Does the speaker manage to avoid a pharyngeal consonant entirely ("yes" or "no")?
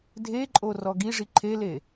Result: yes